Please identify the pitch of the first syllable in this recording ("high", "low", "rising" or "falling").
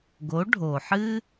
rising